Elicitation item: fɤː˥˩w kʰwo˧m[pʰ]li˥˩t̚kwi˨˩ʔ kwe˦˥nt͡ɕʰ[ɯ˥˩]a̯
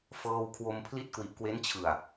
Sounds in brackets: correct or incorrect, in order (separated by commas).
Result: correct, incorrect